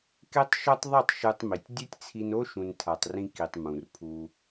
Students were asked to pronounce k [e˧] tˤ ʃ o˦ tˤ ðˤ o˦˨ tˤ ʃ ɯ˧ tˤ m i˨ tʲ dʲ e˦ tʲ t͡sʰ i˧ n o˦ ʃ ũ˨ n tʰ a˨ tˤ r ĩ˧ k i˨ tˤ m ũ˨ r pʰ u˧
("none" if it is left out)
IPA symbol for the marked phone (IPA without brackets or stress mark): e˦